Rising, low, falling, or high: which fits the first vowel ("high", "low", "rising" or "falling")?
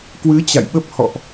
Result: rising